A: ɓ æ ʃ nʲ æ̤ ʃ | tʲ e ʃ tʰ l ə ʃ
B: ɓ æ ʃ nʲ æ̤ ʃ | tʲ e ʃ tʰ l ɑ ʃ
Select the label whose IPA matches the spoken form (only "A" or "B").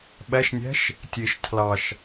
B